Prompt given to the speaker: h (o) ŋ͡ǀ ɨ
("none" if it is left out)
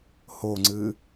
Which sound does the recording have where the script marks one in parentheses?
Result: o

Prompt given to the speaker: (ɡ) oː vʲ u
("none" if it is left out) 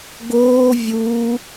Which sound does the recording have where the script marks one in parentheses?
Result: ɡ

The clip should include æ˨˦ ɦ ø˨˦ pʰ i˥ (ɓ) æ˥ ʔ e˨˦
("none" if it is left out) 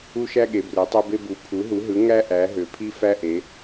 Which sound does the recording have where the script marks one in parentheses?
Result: f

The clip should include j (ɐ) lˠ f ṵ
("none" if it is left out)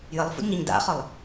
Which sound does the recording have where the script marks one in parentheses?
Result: ə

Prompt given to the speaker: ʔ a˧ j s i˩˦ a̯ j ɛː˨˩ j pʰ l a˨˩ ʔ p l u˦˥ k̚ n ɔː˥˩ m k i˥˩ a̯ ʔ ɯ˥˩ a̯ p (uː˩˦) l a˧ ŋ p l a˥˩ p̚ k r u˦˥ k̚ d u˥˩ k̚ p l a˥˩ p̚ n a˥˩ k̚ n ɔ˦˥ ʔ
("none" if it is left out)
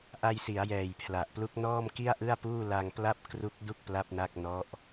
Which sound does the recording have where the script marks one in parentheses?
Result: uː˥˩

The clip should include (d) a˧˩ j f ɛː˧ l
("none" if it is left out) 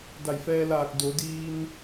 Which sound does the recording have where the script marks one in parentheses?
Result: d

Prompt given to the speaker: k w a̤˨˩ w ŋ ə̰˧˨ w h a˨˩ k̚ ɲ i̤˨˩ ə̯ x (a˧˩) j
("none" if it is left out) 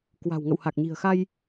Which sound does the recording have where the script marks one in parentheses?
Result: a˧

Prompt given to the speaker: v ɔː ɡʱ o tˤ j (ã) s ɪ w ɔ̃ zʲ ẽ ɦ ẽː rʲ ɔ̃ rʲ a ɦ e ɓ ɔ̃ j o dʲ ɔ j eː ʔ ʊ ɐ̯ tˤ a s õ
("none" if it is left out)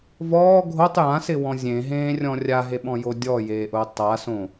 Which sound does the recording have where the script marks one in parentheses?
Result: ã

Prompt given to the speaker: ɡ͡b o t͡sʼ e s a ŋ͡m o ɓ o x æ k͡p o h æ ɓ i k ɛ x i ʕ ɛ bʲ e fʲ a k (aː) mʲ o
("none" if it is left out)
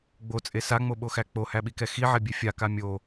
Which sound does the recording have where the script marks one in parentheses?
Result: a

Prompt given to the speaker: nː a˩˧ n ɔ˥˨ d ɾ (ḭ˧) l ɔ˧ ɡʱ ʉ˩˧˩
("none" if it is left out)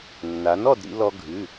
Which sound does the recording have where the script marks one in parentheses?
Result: ḭ˧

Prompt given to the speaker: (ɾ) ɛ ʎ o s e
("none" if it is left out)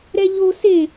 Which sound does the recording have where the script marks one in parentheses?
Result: ɾ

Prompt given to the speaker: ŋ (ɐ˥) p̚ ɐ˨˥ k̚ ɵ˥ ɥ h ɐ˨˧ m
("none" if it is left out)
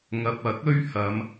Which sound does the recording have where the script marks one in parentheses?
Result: ɐ˨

